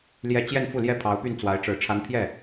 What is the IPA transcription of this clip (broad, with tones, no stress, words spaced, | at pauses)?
ljɛ˥˧ t͡ɕjɛ˥˧nfu˥˩ljɛ˥pʰɑ˧˥ʊ̯ py˥˩nt͡swa˧˥ɪ̯ ʈ͡ʂɻ̩˧˥ ʈ͡ʂʰa˧˥npʰjɛ˥˩